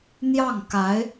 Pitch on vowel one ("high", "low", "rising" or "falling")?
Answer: falling